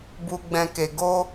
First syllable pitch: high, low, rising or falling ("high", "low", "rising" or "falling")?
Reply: low